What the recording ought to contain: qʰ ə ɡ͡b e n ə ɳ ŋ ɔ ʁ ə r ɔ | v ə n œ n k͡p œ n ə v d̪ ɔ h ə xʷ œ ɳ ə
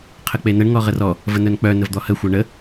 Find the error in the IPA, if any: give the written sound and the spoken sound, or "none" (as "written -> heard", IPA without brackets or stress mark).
ɡ͡b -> k͡p